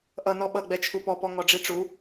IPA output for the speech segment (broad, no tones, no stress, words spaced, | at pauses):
ʔʌ nɔɓʌ ɡ͡bɛt͡ʃʰupɔpɔ ŋɔɖ͡ʐiʈ͡ʂu